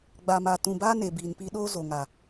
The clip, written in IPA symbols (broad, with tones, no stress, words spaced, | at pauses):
ɡ͡ba˨maː˨tũ˨baː˦ ne˨biː˨n pi˦ ɗoː˦zo˨ŋa˨